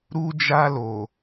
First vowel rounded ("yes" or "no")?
yes